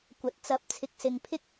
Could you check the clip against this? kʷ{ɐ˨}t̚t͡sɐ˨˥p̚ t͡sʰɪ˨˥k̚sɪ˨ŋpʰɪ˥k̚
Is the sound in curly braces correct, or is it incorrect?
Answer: correct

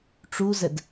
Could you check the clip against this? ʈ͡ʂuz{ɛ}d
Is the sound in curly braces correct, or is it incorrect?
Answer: correct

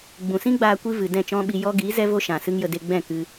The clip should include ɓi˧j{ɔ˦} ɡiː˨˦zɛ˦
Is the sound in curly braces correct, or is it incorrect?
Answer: correct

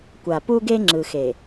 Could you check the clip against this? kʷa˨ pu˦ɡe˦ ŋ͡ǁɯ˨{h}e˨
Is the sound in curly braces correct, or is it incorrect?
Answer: incorrect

